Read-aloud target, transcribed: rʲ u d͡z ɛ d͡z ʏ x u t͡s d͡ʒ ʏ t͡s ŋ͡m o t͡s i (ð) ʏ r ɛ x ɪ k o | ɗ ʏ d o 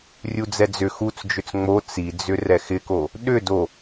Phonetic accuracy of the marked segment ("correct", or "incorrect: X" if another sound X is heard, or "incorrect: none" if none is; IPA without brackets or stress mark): incorrect: d͡z